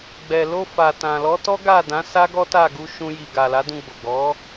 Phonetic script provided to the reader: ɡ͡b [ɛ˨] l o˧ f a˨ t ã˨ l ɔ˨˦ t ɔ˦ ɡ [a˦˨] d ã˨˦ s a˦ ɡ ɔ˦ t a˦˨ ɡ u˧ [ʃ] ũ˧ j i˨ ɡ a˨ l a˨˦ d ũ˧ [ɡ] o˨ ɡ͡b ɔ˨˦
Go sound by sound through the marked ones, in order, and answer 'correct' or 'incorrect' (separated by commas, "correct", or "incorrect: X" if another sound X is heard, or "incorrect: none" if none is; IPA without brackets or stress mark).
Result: correct, correct, correct, incorrect: ɡ͡b